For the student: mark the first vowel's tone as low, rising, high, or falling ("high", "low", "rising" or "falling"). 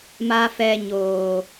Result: high